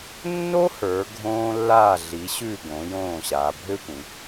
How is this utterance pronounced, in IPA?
nː o˥ h ə˞˩˧ ɡʱ õː˧ lː aː˧˩ ɮ i˩˧ ɕ ʉ˧˩ ɡ õ˩˧ j õː˧˩ ɕ aː˩˧ bʱ ø˥ tʷ ĩ˩˧

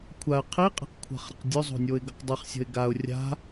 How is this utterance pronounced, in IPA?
kʷʰ a ə̯ qʰ i qʼ i̤ q kʷʰ a̤ χ ɾ ə̤ q dʲ ɵ zˤ o̤ nʲ o ɪ̯ ɡ ə q dˤ i χ sʲ ə̤ ɪ̯ ɡ a ʊ̯ rʲ a̤

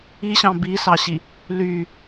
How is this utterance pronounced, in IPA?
i ɕ ɑ̃ b i s ɑ ɕ i | l y

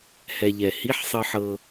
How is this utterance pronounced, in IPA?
h ɛ˧ ʎ ɛ˧˩ h i˧˥˧ ħ sˤ ɯ˧ ħ ɤ˧

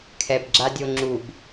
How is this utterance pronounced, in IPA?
kʰ ɛ b ɡ͡ǁ a dʲ o ŋ͡ǁ u b

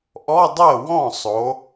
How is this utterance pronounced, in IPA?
ʔ ɔ˧˥˧ dˤ ɜ˥˩ w ɔ̃˥˩ sˤ o˩˧

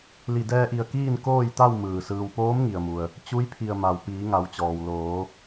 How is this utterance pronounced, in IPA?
l i˧˩ d ɛː˧ ʔ i˧˩ ə̯ k iː˥˨ n k oː˥˨ j t̪ a˥˨ w m ɯː˧˩ s ɯː˧ w p oː˧˥ m ŋ i˩ ə̯ m u˩ ə̯ | t͡ɕ u˧˥ j pʰ i˧˩ ə̯ m a˩ w p iː˩˧ ŋ a˩˧ w t͡ɕ ɔː˩ w l oː˩˧

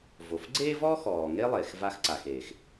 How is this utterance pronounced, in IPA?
v o˩ f ɡ͡ǀ eː˥ v ɔː˥ x ɔː˩ ŋ e˥ lˠ eː˩ x v a˧ x ǀ a˩ x eː˩ x

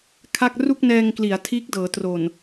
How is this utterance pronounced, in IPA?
kʰ a˥˩ k̚ r u˥˩ k̚ n ɛː˧ ŋ k l i˩˦ a̯ tʰ iː˦˥ k̚ d ɤː˩˦ t r o˨˩ n

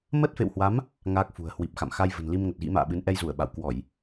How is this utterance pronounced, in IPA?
m ə˦˥ t̚ f ḛ˧˨ w h w a˨˦ m | ŋ aː˦˥ k̚ f ṳ˨˩ ə̯ h w i˨˩ p̚ x a̰˧˨ m x a˧ j v ə̤˨˩ n l i˧ m ŋ ə˨˩ t̚ ɣ ḭ˧˥ m a̰ː˧˨ ɓ ɨ˨˦ n ʔ ɛ˧ j z u˧˩ ə̯ ɓ a̰˧˨ w k w ɔ˧˩˨ j

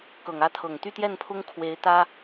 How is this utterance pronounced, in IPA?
k ɤ˨˩ ŋ ä˥ t̪ʰ ɤ˨˩ ŋ t̪ y˥˧ t̪ j ɛ˥˩ n pʰ ʊ˥ ŋ kʰ w e˧˥ ɪ̯ t̪ ä˥

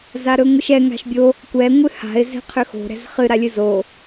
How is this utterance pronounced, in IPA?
z a ɾ ɵ ŋʷ ɨ ʃ ɛ ŋ a̤ ʃ bʲ o | kʷ ɛ ŋʷ ɨ h a̤ ɪ̯ z ɛ̤ qʰ ʏ x o̤ ɾ ɛ̤ z χ ɨ ɾ a lʲ ɨ z o

